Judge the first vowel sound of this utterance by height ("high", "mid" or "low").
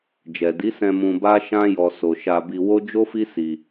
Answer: mid